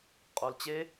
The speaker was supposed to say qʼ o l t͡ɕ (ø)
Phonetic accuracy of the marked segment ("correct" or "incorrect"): incorrect